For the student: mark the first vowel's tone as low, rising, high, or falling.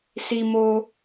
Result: high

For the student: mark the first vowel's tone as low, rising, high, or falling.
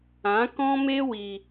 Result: rising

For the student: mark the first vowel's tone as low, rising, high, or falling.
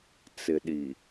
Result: low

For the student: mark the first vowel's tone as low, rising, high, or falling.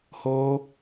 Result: high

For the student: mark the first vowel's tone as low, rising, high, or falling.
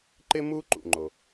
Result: high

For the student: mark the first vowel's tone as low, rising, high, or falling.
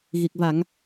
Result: low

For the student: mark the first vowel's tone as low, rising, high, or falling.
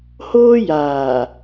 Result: high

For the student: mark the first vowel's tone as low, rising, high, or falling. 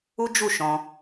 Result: high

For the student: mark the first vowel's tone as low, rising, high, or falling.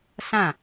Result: falling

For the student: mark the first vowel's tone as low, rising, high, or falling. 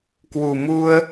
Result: low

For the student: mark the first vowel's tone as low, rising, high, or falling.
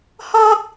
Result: high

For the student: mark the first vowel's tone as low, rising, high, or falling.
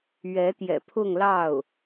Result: rising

